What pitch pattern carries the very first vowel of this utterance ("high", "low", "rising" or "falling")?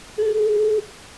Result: high